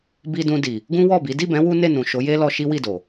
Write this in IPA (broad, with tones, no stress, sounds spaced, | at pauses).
b i˧ d ũ˧ d i˨ | ɡ ũ˦ w ɔ˦˨ b i˨˦ d i˦˨ b ɛ̃˨˦ w u˦ n e˦˨ n ũ˨ ʃ o˨˦ j e˦ l ɔ˧ ʃ i˦ w i˦˨ d o˨